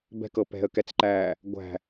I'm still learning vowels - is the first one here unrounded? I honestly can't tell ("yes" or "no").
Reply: yes